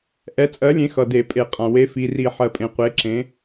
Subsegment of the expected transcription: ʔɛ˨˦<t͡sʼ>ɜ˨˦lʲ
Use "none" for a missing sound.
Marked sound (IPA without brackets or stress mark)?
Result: t͡sʼ